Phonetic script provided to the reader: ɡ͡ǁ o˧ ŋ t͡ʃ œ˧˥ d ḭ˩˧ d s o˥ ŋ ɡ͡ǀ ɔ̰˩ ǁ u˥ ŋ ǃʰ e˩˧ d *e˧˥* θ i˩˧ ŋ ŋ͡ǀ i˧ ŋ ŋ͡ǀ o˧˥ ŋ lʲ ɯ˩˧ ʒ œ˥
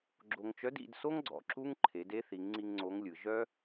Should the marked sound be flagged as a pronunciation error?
no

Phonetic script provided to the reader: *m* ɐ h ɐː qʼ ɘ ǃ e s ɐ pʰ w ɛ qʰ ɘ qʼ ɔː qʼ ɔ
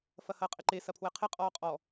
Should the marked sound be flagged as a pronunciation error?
yes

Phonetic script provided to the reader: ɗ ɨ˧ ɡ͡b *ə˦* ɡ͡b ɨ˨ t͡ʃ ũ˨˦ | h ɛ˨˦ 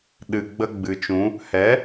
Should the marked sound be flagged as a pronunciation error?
no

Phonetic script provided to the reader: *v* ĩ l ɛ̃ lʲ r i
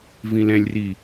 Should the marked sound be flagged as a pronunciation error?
no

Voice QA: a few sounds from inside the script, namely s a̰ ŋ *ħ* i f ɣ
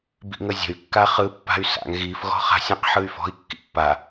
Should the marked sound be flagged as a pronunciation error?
yes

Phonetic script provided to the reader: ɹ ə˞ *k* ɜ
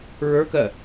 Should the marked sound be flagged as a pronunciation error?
no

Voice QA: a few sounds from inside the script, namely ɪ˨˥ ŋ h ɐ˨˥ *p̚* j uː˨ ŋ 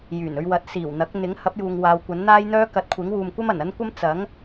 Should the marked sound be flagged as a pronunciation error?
no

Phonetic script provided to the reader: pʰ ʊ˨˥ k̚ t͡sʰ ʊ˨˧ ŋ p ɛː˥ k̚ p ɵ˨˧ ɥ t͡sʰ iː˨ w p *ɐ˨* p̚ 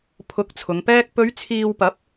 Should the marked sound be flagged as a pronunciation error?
yes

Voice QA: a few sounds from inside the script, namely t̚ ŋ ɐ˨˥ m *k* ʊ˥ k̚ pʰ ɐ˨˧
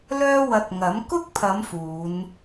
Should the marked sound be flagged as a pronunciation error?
no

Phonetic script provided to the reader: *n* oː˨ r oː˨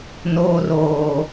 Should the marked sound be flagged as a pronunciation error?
no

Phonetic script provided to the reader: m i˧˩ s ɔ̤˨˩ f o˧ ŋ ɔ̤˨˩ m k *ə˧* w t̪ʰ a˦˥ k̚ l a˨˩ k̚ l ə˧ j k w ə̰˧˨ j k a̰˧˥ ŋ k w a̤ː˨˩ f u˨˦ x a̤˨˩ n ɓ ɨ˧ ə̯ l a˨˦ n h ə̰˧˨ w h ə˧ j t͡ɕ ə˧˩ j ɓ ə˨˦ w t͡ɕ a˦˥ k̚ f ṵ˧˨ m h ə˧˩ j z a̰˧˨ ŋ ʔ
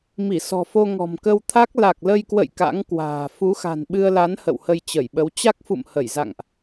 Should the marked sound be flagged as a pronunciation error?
no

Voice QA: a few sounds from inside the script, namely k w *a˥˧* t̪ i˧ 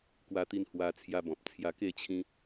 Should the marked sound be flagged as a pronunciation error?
yes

